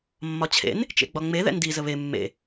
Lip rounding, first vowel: rounded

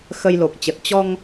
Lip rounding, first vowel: unrounded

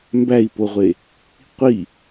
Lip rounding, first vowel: unrounded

